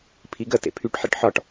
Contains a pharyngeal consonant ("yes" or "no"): yes